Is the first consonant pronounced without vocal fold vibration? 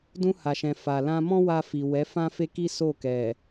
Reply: no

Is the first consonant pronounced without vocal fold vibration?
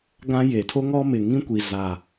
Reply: no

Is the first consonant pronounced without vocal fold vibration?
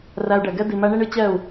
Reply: no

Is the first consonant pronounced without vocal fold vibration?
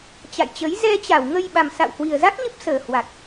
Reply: yes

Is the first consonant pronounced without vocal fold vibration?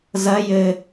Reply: no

